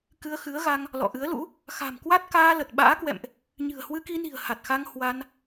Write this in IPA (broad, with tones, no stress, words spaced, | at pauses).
kɨ˧ə̯xɨ˨˦ə̯ɣa˧ŋ | lɔ̰˧˨ʔɨ˨˦ə̯lṵ˧˥ | xa̤˨˩mkwa˦˥t̚ kaː˧lə˨˩t̚ɓa̰ː˧˥kwɛ̰˧˨mʔ | ɲɨ̤˨˩ə̯hwɨ˧ki˧ni̤˨˩ə̯ ha˨˩t̚xa˧ŋ hwa˧n